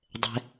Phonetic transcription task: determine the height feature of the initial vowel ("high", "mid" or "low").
mid